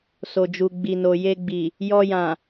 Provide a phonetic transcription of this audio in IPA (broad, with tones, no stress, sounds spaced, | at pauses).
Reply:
s o˨ d͡ʒ u˨ ɡ͡b i˨ n o˨ j e˧ ɡ͡b i˨ | j ɔ˧ j ã˨